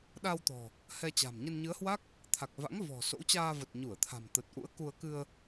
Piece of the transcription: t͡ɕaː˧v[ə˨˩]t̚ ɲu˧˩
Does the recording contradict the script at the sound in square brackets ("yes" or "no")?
no